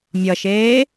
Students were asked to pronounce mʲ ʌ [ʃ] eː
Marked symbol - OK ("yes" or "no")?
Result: yes